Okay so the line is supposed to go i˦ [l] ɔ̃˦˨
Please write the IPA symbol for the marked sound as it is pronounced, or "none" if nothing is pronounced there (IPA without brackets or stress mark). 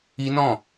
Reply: n